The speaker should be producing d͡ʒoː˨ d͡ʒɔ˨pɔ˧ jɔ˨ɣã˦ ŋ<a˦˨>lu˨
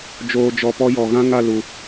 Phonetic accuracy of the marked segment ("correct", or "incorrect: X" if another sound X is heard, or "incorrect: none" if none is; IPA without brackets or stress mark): correct